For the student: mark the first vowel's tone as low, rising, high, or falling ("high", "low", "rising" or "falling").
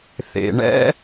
low